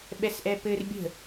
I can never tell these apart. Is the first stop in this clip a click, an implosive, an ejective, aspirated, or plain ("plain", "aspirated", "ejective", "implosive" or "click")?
implosive